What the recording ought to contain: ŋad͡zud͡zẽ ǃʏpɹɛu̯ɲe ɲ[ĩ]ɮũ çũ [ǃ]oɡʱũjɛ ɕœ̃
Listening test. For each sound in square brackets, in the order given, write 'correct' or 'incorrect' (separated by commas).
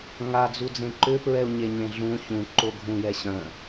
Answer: incorrect, correct